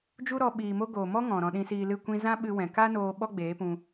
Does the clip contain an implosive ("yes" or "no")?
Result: yes